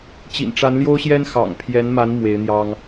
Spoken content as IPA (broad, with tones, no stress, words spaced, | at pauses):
t͡ɕḭ˨˩nʈ͡ʂa˧˥nljo˥ʊ̯ɕjɛ˥n xɑ̰˨˩ŋpʰjɛ˧˥nma˧˥n mwe˧˥ɪ̯n̪jɑ˥ŋ